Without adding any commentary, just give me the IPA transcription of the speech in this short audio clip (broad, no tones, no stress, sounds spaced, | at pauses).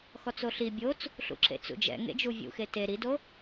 x ɔ t͡s o ɬ i bʲ o t͡s | ɬ ṵ ǁ ḛ t͡s ṵ d͡ʒ ɛ̰ ŋ ḛ d͡ʒ u vʲ ṵ x e t e ɾ i d o